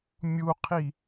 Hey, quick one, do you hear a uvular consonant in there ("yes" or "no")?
yes